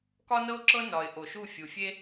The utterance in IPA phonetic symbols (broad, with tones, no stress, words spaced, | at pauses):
kɒ˥nɤ˥ʊ̯ǁɤ˥ nɒ˧ɪ̯ ʔo˧˩ʃu˥˧ fʲu˧fʲe˥